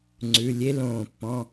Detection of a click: present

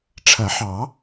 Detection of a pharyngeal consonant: present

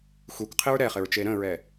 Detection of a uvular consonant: present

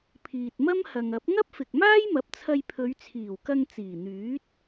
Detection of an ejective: absent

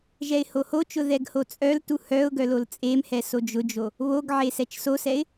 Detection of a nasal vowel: absent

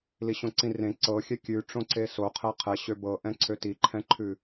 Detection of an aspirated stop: present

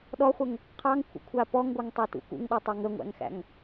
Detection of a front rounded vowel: absent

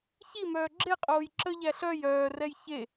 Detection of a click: present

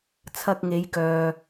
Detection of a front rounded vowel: present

